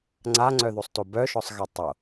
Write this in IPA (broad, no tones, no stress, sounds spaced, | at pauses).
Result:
ŋ͡ǀ a ŋ͡ǀ œ ð o sˤ t o b œ ʃ ɔ sˤ ɣ ɛ tˤ o